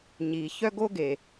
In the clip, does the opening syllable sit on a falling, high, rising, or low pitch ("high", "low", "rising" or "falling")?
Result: low